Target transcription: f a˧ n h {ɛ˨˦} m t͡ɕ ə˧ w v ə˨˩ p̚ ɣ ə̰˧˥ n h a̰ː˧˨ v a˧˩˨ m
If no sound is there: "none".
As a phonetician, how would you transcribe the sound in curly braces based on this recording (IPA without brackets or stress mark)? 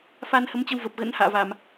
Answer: ə˨˦